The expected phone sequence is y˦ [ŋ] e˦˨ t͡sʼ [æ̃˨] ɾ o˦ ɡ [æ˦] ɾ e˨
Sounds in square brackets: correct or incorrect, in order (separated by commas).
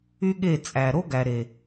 incorrect, incorrect, incorrect